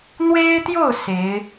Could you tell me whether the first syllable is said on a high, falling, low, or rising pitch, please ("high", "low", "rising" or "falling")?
high